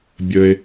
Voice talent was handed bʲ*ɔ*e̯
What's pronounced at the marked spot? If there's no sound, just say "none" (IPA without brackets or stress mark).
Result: ə